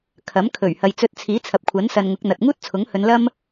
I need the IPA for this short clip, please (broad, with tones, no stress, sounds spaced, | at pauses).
kʰ ɐ˨˥ m kʰ ɵ˨˩ ɥ h ɐ˨ j t͡s ɵ˧ t̚ t͡sʰ iː˨˥ t͡sʰ ɐ˨ p̚ kʷʰ ɐ˨˥ n s ɐ˧ n ŋ ʊ˨˥ k̚ n̪ ɐ˨ t̚ ŋ uː˥ t̚ t͡sʰ ʊ˨˥ ŋ h ɵ˨˧ n l ɐ˥ m